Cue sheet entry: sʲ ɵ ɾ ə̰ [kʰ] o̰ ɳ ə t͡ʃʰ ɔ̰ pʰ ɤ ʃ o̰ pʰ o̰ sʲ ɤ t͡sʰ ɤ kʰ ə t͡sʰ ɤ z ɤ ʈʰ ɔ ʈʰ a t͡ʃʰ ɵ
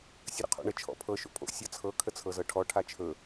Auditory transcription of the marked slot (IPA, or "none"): qʰ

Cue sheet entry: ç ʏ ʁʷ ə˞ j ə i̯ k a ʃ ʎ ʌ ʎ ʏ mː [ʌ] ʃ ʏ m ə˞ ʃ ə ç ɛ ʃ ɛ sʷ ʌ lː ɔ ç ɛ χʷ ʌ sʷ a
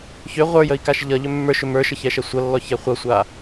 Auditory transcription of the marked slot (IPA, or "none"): ə˞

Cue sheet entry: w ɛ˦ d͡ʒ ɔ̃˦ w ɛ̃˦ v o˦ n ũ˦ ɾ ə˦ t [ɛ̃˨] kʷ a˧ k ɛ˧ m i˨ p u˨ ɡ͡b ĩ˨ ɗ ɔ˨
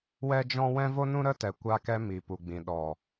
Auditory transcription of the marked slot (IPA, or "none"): ɛ˨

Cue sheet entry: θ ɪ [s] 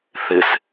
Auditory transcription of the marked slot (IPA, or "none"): s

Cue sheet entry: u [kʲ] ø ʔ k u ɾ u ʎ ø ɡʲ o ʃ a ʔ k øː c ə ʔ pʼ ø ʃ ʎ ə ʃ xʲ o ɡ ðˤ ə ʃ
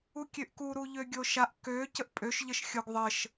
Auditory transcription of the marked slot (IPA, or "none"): kʲ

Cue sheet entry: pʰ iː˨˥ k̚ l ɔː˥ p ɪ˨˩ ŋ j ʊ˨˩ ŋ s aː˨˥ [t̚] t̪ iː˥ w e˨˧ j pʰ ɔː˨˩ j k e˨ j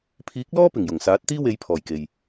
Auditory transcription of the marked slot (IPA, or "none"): t̚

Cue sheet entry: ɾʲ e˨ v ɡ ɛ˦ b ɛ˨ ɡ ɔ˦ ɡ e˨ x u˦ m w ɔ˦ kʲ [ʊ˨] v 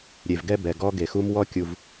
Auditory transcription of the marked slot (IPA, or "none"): u˨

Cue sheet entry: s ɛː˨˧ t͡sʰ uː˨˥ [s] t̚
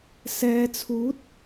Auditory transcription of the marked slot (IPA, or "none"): none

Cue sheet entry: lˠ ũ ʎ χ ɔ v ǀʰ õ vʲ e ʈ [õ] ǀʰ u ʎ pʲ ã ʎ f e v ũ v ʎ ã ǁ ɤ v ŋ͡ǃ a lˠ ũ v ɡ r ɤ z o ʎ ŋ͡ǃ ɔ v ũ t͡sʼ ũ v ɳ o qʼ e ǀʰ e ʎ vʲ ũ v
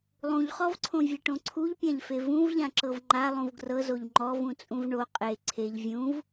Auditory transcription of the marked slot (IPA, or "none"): õ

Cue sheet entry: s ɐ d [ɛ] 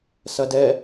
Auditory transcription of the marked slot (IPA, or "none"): ɛ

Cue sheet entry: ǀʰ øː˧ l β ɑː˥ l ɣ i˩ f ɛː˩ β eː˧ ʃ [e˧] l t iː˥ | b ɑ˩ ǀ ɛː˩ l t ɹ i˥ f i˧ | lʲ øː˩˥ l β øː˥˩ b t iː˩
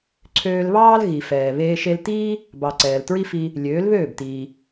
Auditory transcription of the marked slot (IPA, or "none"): e˧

